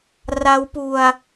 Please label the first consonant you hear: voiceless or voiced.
voiced